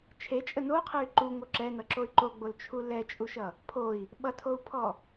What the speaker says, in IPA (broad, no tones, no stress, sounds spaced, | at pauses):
t͡ʃʰ e t͡ʃʼ ə n o qʰ ɛ y̯ ǃ u ŋ o ǁ ɛ n ʌ ǁ o y̯ ǃ o ɡ͡b o l t͡ʃʰ u l ɛ t͡ʃʼ u ʃ ʌ | pʰ o i̯ | ɓ ʌ tʰ o u̯ pʰ ɔ